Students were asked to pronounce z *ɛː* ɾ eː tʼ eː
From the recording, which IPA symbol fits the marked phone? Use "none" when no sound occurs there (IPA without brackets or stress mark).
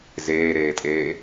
eː